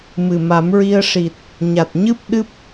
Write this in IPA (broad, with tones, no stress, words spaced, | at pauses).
mɨ˨˩ma˨˩˦mɹi˧ə̯ ʂi˨˩t̚ | ɲa˨˩t̚ɲɨ˦˥p̚ ɗɨ˦˥p̚